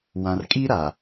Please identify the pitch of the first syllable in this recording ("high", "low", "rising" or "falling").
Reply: low